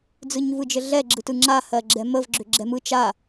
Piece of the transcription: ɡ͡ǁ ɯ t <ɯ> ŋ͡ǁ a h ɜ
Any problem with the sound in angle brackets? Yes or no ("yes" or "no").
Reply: no